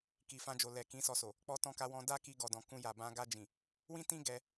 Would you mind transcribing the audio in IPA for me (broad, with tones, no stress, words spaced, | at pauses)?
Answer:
ki˨fã˧d͡ʒo˨lɛ˨ kĩ˨˦sɔ˧so˨ | k͡pɔ˧tɔ̃˧ka˧wɔ̃˧ da˦ki˧ ɡɔ˨dɔ̃˨ kũ˧ ja˨bã˧ ɡa˧d͡ʒĩ˨ | wĩ˦tĩ˦ ɡɛ˧